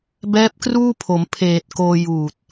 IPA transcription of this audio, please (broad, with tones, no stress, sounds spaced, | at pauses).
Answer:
b ɛː˦˥ p̚ k r uː˥˩ pʰ o˩˦ m pʰ eː˨˩ t̚ k oː˧ j uː˨˩ t̚